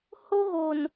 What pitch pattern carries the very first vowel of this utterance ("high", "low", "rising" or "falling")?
high